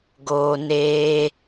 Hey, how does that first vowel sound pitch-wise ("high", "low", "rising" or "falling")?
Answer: low